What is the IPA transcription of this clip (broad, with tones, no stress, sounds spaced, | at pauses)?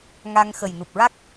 ŋ a˧ ŋ x ə˨˩ j n u˨˩ p̚ ɹ a˦˥ k̚